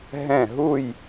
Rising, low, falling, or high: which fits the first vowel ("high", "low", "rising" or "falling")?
falling